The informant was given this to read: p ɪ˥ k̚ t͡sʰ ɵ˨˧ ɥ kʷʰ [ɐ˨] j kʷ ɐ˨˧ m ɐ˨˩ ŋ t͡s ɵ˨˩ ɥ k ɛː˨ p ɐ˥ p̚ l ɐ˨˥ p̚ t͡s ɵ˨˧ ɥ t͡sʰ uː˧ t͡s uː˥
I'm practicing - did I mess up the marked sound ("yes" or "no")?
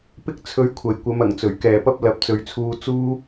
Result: yes